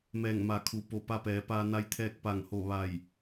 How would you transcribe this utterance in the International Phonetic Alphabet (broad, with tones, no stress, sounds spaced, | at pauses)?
m ɛː˧˩ ŋ m a˩˧ kʰ u˩ p o˧˩ p a˧ p ɛː˩˧ p aː˧ n a˧ j t̪ʰ ɛː˧ k̚ p a˧˩ ŋ h o˧˩ ʋ a˧˩ j